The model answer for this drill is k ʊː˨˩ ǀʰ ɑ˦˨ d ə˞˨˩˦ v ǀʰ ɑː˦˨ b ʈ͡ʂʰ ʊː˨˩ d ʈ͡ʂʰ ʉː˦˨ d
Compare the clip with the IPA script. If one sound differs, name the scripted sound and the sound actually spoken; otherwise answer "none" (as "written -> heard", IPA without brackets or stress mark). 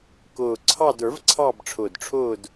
ʉː˦˨ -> ʊː˦˨